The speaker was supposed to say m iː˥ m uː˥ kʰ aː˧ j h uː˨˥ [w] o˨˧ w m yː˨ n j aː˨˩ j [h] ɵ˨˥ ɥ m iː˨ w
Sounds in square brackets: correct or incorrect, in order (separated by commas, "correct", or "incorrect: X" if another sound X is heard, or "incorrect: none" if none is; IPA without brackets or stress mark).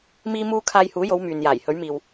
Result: incorrect: j, correct